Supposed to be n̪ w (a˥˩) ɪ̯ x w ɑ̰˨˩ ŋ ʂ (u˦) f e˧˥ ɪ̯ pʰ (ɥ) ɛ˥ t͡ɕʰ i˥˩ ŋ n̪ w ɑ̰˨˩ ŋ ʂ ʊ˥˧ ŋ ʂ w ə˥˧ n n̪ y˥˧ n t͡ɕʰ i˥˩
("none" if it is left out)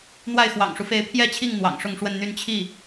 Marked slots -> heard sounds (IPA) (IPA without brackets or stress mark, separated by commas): a˥˩, u˦, j